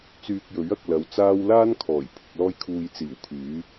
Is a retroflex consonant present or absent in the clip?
absent